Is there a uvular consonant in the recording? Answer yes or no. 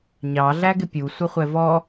yes